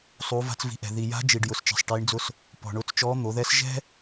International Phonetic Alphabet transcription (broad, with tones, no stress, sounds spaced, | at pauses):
sˤ uː˩˧ v a̤˧ t͡s v i̤˩˧ ʔ ɛ̤˩ ð i˩ j a̤˧˥ d͡ʒ i˩ ɖ j ʊ˩ s t͡ʃ ɛ̤˩ sˤ ʈ iː˩˧ ɳ d͡z ʊ˧ s | p ɔ̤˩ ɳ ʊː˧ t͡s t͡ʃ ɔː˧˥ n̪ o˩˧ ð ɛ˧˥ s ʒ ɛ̤˥